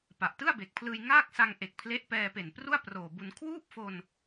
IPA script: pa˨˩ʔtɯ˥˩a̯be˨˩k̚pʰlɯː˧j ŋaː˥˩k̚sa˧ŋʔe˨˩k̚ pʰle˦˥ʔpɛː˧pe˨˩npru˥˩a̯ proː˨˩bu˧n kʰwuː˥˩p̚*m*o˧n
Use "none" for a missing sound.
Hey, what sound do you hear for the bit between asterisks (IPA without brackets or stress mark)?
f